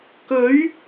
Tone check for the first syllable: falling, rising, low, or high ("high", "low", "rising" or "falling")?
rising